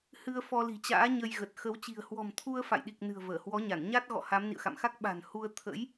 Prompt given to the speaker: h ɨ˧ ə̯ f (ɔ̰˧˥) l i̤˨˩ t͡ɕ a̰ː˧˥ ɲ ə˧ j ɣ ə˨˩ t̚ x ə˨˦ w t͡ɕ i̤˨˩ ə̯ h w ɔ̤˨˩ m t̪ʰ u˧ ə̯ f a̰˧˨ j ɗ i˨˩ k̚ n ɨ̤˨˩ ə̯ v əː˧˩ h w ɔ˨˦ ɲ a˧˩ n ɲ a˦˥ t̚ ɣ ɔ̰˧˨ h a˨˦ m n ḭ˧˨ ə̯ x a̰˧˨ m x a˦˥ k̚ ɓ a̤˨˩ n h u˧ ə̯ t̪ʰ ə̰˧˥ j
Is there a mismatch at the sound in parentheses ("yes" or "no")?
yes